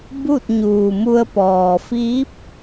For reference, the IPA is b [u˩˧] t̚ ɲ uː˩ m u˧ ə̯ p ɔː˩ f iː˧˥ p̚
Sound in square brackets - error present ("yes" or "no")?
yes